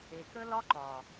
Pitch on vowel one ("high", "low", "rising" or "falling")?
low